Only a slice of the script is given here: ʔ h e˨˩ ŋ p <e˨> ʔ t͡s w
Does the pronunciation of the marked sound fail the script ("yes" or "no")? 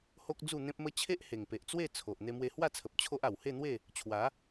no